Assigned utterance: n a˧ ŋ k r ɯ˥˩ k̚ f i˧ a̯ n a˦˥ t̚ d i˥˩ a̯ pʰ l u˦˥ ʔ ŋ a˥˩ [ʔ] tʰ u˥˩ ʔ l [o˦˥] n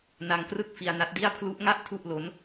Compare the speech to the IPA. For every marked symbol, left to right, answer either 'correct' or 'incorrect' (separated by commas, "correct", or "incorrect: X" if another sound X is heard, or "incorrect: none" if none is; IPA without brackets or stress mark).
correct, correct